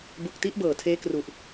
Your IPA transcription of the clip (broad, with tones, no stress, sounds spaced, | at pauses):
b u˨˩ k̚ t i˦˥ ʔ b ɤː˨˩ tʰ eː˦˥ k r u˨˩ ʔ